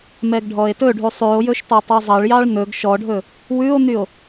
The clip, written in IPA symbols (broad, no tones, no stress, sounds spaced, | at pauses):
m ɛ ɡ ɖʱ ɔ e̯ t ɵ ɖʱ u sˤ ʉ o̯ j ɵ ʃ t ɑ tˤ u zˤ ɑ ɭ j ɑ ɭ n̪ ɵ ɡ ʃ ɔ ɖʱ ɵ | w ʉ o̯ n̪ y o̯